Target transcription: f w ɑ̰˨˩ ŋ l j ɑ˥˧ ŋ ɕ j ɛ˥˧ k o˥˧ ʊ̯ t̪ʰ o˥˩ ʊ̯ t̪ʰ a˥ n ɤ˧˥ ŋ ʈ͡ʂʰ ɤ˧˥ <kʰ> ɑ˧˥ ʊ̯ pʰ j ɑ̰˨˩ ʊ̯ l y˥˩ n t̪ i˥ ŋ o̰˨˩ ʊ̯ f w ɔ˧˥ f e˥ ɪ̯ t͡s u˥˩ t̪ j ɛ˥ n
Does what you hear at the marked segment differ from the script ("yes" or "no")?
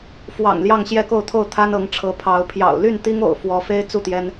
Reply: yes